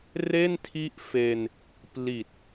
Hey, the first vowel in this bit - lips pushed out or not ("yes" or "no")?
no